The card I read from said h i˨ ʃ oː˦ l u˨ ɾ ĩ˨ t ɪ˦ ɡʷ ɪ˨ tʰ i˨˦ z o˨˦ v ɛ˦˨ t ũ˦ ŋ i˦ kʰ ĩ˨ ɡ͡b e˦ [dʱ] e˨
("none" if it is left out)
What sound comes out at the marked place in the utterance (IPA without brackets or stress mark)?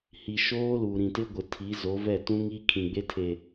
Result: tʰ